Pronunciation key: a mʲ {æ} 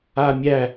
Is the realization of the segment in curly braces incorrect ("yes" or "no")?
no